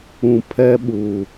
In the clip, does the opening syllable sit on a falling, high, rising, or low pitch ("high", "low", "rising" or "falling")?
low